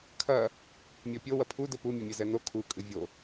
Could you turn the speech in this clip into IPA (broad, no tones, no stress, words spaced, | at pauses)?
kʰɐ | mʲɔpʲo wɐpʰu dɘpu mʲɐmʲɛzɛno kʰu kʼɨvʲo